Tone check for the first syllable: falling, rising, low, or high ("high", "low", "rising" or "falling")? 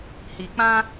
low